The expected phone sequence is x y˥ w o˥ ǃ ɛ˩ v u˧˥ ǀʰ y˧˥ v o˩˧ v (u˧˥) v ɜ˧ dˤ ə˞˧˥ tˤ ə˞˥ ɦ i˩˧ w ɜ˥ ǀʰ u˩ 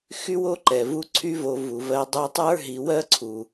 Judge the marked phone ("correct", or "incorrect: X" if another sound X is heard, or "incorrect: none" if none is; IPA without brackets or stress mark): incorrect: u˩